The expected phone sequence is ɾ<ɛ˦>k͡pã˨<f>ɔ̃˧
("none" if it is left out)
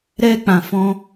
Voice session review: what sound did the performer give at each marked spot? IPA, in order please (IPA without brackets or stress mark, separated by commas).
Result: ɛ˦, f